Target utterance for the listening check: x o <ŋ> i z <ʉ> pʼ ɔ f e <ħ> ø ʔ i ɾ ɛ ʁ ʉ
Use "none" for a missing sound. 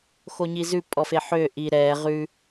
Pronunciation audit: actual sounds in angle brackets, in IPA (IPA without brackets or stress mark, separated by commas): ɲ, ʉ, ħ